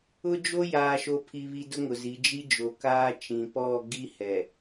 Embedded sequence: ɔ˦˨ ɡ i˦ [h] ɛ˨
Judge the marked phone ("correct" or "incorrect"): correct